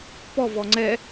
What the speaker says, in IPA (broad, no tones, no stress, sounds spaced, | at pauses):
p ɔ v ɔ ŋ͡ǀ ɛ